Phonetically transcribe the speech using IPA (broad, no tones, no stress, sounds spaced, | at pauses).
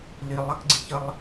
l i lˠ ɐ k ɡ͡ǀ i ç ə lˠ